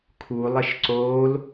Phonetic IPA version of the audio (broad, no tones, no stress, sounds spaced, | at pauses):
kʰ u lˠ e ʃ ǀ oː l